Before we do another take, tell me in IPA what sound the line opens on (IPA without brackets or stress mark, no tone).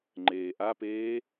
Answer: ŋ͡ǃ